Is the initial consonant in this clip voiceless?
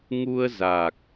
no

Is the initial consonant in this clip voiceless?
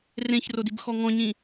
no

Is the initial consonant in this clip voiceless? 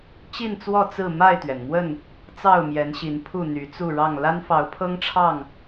yes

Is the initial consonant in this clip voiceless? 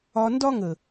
no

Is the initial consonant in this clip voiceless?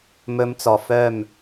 no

